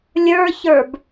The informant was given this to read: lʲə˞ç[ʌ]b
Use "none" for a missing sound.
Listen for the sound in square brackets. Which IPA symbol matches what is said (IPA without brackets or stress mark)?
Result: ə˞